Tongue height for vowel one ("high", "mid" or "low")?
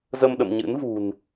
mid